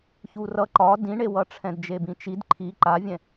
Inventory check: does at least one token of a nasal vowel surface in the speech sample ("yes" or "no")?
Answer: yes